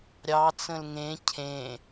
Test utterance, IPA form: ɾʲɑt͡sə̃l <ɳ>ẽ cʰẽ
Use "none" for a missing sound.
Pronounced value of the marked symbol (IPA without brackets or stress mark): ŋ